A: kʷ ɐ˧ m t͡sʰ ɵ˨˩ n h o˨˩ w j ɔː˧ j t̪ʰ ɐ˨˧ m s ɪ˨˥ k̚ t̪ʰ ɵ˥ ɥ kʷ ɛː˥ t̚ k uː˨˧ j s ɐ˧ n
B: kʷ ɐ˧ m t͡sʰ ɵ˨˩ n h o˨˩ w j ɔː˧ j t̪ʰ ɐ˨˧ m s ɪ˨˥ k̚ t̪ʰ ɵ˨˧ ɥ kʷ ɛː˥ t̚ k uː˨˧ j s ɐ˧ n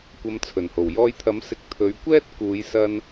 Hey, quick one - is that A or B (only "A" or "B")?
B